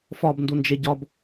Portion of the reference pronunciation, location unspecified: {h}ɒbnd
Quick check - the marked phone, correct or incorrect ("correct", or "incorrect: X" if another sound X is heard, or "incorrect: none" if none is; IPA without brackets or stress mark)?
incorrect: f